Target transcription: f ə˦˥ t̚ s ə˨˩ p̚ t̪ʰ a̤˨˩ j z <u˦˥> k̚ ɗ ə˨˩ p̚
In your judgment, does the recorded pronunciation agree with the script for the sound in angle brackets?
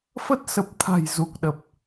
no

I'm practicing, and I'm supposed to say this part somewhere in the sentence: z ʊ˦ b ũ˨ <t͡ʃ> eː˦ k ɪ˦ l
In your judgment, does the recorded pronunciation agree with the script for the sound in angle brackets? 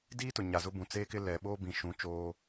no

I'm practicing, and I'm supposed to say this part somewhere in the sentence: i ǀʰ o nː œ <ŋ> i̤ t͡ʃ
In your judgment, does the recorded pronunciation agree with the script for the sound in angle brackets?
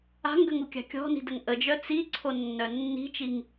no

